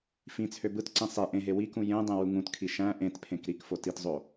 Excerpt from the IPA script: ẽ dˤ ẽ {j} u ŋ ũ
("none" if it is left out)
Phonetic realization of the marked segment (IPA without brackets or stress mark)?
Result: w